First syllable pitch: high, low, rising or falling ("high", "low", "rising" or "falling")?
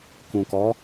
low